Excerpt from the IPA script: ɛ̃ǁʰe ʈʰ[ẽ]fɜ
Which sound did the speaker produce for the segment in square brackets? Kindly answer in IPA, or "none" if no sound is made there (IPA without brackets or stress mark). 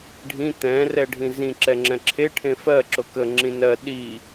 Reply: ẽ